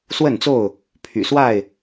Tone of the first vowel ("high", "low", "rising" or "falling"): falling